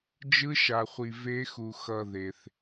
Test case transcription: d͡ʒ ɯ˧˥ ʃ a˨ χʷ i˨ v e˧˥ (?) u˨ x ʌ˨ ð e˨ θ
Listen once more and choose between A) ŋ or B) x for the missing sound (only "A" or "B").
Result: B